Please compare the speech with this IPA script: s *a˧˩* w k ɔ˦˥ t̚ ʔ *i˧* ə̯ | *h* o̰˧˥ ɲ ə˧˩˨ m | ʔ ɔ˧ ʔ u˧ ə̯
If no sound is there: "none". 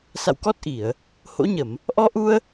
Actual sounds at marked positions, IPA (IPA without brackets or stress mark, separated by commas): a̰˧˨, i˧˩˨, h